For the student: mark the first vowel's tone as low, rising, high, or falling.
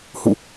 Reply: falling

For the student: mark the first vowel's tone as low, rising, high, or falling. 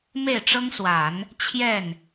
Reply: falling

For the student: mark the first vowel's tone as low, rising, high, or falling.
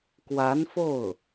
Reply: rising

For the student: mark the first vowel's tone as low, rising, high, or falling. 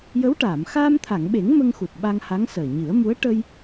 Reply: rising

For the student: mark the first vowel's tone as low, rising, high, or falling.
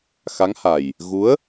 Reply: rising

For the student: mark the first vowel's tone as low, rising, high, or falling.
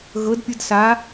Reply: rising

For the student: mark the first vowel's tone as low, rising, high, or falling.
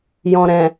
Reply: low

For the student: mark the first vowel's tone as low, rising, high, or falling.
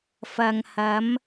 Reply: low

